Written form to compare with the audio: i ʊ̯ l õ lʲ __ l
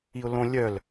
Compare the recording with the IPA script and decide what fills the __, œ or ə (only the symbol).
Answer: œ